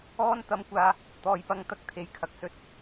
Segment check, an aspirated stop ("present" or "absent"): present